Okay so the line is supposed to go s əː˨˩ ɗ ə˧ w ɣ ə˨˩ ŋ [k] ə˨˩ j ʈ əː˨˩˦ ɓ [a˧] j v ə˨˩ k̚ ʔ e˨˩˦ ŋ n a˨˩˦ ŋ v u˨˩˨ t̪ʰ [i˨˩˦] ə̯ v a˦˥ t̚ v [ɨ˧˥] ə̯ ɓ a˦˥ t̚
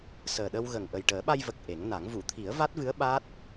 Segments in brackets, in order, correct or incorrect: incorrect: ʔ, correct, correct, correct

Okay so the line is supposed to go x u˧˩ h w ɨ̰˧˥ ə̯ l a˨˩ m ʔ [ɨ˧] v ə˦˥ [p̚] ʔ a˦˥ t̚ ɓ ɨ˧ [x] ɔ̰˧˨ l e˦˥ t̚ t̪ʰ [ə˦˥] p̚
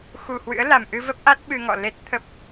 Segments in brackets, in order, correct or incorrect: correct, correct, incorrect: ŋ, correct

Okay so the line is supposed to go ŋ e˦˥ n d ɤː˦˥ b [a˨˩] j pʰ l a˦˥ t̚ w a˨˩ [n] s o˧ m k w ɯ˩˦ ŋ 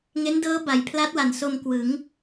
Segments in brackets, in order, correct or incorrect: incorrect: a˩˦, correct

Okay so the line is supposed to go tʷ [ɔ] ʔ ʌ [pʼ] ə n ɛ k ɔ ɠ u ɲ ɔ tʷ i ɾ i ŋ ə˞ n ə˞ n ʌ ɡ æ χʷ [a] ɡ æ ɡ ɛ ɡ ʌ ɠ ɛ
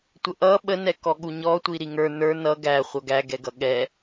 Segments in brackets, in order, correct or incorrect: incorrect: ə, incorrect: ɓ, incorrect: ʌ

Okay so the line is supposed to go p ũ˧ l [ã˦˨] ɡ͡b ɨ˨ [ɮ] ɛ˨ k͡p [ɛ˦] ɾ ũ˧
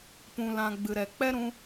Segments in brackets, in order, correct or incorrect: incorrect: ã˧, incorrect: ɾ, correct

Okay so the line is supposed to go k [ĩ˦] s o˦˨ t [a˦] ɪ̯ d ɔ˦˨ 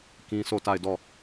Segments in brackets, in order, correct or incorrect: correct, incorrect: a˦˨

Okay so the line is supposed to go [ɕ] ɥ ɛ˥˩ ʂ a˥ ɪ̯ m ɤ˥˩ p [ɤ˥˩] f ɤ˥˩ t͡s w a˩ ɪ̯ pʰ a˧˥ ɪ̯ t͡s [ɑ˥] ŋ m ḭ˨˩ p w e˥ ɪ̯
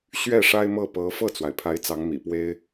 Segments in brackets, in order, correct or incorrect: correct, incorrect: ɤ˧˥, incorrect: ɑ˧˥

